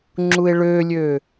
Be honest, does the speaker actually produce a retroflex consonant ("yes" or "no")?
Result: yes